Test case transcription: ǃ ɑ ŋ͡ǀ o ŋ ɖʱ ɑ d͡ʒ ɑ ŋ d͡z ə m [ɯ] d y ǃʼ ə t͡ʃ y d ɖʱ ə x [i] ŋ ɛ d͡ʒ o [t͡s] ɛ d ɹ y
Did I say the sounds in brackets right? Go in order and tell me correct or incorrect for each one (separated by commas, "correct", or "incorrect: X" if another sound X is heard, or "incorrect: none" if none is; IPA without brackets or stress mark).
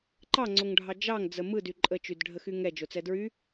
correct, incorrect: y, correct